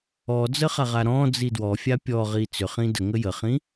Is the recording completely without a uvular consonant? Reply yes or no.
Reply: no